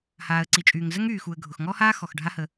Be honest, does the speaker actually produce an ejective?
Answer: yes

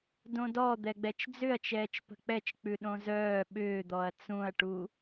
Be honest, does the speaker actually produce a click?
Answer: no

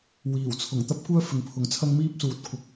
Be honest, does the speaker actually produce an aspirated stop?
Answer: yes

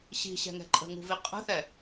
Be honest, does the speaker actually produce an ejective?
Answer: yes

